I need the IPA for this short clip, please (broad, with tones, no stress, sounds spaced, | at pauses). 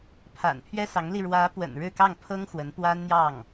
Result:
pʰ a̰˨˩ n pʰ ɥ ɛ˥ s ɑ˧˥ ŋ l i˧ ɻ w ä˧˥ p w ə̰˨˩ n ɻ ɻ̩˥˧ k ɑ˥˩ ŋ pʰ ɤ˥ ŋ x w ə˧˥ n p w a˥ n n̪ j ɑ˥˩ ŋ